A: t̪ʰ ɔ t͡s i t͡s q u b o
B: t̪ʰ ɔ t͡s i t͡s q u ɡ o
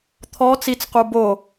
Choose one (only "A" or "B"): A